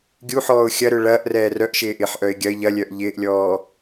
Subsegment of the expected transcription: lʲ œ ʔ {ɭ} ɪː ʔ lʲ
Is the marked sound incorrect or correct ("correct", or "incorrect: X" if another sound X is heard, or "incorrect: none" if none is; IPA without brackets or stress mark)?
incorrect: ʎ